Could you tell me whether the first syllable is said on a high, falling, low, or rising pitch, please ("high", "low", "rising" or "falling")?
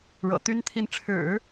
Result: low